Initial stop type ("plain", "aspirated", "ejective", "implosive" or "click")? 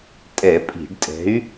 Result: ejective